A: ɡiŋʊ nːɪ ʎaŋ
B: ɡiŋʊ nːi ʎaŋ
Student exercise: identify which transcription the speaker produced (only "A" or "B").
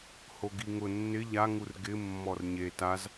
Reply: A